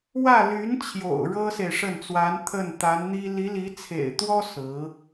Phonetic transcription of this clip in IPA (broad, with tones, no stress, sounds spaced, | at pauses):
w ä˥˩ l y˧˥ n t͡ɕʰ j o̰˨˩ ʊ̯ ɻ ɤ˥ s e˨ ɪ̯ ʂ ə˥˩ n t͡s w a˧˥ n t̪ʰ ə˥˩ n t̪ a˧˥ n n̪ i˥ l i˧˥ l i˧˥ t͡sʰ ḛ˨˩ ɪ̯ t̪ w ɔ˥ s ɹ̩˧˥